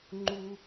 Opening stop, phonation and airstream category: click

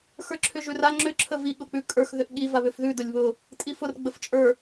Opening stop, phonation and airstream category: click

